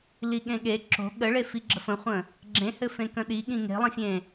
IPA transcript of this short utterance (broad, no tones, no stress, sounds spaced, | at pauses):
l i ɠ ẽ ɠ e ǁ o̤ ɠ ə ɭ e f i ɡ͡ǁ ə f ə̃ χʷ ə̃ | ɡ͡ǁ ẽ h ɘ f ẽ k ə̃ ɗ i ɠ ĩ ŋ e̤ lˠ ə̃ fʲ ẽ